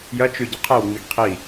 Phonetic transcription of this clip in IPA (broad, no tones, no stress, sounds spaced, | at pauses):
j ɐ t͡ʃ ʉ ɟ ə qʰ ɛ w ŋ͡m i ɡ qʰ i